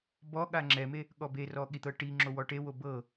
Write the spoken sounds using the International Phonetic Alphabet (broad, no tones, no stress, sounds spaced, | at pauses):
b ɔ ɠ a ŋ͡ǁ ɛ m e | ɠ ɔ b e r ɔ ɠ i t̪ ɤ ʈ i ŋ͡ǁ o w ɔ ʈ e w o b ɤ